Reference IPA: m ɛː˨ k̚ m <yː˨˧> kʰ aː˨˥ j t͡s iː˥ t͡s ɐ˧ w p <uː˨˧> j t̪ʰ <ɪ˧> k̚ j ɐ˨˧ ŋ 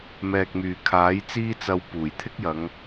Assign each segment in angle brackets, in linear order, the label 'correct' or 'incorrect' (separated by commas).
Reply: incorrect, incorrect, incorrect